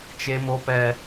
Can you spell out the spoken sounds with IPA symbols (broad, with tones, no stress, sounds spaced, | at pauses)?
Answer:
t͡ʃ e˦ m o˦ p ɛ˦